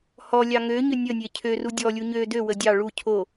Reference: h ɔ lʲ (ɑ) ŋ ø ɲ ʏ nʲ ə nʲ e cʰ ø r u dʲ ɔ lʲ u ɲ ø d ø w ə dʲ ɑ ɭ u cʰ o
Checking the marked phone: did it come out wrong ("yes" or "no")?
no